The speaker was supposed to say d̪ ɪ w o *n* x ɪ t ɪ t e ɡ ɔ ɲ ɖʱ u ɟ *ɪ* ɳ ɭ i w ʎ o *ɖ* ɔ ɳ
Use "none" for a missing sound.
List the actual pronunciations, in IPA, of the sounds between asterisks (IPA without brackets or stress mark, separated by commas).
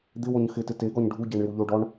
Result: ɲ, ɛ, ɖ